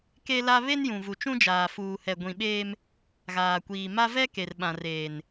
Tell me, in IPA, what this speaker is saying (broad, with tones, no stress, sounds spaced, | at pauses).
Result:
k e˦ l a˦ β e˦ n j ũ˨ v u˨ t͡ʃ ũ˦ d͡ʒ aː˨ f uː˨ h ɛ˨ ɡʷ ĩ˨ ɓ eː˦ m | ɣ aː˨ kʷ iː˨ m a˦ v ɛ˦ k e˨ r ɓ ã˨ r eː˨ n